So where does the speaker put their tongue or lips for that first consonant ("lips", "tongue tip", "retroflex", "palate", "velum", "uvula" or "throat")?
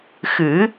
velum